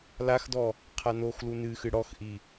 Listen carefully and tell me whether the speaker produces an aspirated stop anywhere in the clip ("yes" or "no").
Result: yes